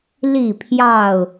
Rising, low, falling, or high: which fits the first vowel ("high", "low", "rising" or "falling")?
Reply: falling